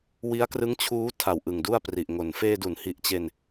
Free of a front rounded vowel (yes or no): yes